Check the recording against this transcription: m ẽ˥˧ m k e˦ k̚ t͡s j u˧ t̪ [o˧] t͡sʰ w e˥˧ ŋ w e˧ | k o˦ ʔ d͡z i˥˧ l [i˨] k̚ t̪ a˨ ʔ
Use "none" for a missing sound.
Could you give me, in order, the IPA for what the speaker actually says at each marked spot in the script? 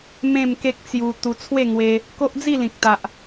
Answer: u˧, ĩ˨

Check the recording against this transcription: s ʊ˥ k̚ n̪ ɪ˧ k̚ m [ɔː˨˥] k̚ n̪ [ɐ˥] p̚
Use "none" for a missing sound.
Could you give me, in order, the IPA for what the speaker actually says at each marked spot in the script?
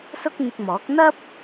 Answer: ɔː˨˥, ɐ˥

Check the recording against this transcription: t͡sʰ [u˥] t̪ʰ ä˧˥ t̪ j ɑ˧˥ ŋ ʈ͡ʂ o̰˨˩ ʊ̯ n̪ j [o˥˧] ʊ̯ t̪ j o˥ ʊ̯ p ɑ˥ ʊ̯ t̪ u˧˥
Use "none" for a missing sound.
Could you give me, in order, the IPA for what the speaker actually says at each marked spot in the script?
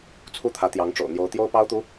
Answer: u˥, o˧˥

